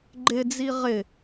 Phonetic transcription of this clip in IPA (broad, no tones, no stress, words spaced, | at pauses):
ɡ͡ǃɪd͡zi ʁɪ